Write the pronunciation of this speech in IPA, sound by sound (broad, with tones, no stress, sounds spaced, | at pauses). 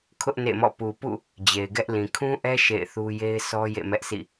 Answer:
kʰ ʊ˦ ʔ n ḛ˦˨ m ɔ̰˦˨ p u˨ p ṵ˦˨ | d͡ʑ e˨ ɪ̯ ɡ ɛ˦ ʔ l ĩ˨ kʰ ũ˦ ʔ ɛ˦ ʃ ḛ˦˨ ɪ̯ θ u˦ j e˦ ɪ̯ s ɔ˦ j ḛ˦˨ m ɛ˦ ʔ s ḭ˦˨